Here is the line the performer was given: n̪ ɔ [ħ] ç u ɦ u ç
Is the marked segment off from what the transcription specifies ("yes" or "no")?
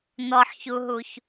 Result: no